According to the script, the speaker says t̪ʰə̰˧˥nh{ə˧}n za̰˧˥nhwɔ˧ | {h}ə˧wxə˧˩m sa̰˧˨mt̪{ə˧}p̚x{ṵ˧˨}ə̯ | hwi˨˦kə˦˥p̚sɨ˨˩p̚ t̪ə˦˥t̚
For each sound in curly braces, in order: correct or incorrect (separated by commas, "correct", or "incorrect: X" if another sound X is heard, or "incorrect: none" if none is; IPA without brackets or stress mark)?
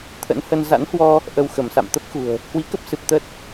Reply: correct, incorrect: ʔ, incorrect: ə˦˥, incorrect: ṳ˨˩